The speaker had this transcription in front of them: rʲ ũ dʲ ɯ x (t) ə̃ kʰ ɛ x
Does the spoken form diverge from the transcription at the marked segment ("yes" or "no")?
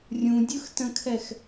no